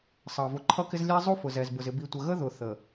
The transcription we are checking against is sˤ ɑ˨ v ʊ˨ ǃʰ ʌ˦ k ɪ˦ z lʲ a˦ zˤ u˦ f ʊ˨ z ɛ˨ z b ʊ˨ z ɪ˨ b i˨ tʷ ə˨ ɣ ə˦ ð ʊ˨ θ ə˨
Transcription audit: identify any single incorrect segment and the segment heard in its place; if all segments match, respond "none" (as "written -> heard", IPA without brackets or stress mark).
a˦ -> æ˦